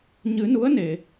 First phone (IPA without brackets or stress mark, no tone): ɲ